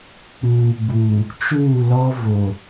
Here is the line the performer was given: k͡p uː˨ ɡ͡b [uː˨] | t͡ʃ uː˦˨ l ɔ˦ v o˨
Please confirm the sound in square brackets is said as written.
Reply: yes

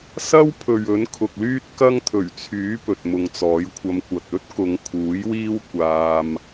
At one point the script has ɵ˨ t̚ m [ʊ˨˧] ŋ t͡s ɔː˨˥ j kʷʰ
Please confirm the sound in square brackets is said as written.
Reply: no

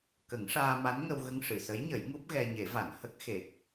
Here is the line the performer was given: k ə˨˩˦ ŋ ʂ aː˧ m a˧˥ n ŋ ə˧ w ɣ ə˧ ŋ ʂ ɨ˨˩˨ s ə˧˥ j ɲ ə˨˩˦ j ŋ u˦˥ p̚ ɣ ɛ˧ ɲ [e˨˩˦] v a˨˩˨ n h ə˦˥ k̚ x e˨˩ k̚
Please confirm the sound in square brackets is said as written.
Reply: yes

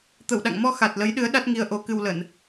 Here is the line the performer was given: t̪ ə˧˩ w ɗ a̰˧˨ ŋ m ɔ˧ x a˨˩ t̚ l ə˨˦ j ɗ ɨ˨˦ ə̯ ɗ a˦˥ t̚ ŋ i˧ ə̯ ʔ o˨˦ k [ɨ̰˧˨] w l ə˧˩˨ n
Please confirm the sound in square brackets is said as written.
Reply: no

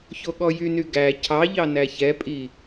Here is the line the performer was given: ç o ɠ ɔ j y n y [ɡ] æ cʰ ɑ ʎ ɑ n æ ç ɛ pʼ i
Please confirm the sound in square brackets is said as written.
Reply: yes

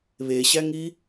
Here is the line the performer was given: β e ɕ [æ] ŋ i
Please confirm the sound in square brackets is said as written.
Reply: yes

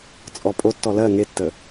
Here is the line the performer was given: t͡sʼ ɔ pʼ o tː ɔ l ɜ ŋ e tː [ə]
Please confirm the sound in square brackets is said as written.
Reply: yes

